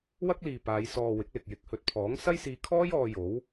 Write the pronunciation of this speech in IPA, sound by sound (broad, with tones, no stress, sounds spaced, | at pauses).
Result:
w ɐ˥ k̚ l iː˨ p aː˨˧ j s ɔː˨ w ɪ˨˥ k̚ l ɪ˨ k̚ j ɪ˨˥ k̚ h ɵ˨ t̚ pʰ ɔː˨˥ ŋ s ɐ˥ j s iː˧ kʰ ɔː˥ j ɔː˧ j o˨˥ w